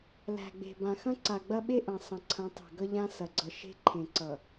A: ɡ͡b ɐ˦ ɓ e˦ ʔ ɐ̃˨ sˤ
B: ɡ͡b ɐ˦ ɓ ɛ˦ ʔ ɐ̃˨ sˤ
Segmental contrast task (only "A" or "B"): A